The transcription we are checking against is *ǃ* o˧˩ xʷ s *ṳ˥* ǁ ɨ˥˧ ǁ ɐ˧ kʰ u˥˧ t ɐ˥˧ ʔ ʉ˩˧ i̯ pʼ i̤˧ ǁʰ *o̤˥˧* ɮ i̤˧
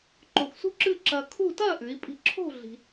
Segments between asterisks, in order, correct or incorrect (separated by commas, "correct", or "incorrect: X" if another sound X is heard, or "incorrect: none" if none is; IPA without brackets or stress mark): correct, correct, correct